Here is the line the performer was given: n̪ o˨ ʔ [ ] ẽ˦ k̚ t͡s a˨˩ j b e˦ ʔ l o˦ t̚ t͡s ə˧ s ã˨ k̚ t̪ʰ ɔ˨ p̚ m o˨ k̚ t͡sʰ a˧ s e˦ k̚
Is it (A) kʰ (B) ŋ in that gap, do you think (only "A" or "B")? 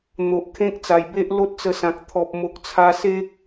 A